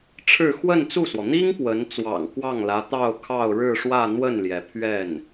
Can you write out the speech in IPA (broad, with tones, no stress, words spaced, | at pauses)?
ʈ͡ʂʰɻ̩˥˧ xwə˥˧nt͡su˥˩swɔ˩ n̪i˥ŋ pwə˧˥n t͡swɑ̰˨˩ŋkwɑ˥˩ŋlä˧˥ t̪ɑ˥˧ʊ̯kʰɑ˥˧ʊ̯ɻɻ̩˥˧ʂwä˥˧ n̪wə˥˩nljɛ˩pʰɥɛ˥˩n